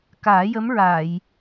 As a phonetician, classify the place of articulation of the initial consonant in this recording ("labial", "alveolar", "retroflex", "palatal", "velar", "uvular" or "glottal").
velar